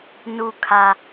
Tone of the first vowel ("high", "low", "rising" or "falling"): low